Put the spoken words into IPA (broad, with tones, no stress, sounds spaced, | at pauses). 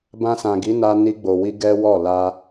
b ã˧ s ã˨ ɡ i˨˦ n a˧ n i˧ ɡ͡b o˨ w i˧ ɡ ɛ˦ w ɔ˦˨ l a˧